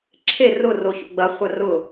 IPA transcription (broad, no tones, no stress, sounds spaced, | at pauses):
ǁʰ e r ʊ r o ç o̰ ɡ͡b ɐ χʷ ɐ r ʊ